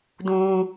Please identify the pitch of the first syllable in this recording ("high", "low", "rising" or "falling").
high